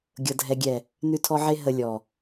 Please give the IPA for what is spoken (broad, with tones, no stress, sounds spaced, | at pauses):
ɡʲ ɤ˨ dʱ ɛ˨ ɡʲ ɛ˨ | n ʉ˧ tʰ ɔ˧ ʕ e˧ ɦ ə˨ lʲ ɔ˨